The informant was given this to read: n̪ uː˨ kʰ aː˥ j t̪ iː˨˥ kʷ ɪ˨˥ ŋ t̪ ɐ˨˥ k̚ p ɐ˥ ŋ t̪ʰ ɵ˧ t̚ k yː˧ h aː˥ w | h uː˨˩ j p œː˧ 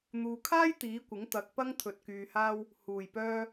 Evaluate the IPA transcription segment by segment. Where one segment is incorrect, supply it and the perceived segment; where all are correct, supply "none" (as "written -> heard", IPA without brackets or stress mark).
none